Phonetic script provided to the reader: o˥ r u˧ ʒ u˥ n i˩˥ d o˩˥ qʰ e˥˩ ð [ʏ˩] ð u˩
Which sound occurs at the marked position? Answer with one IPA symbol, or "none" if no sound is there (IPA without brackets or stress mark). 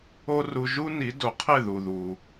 u˩